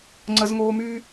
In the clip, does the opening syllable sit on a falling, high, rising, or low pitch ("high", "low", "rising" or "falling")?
high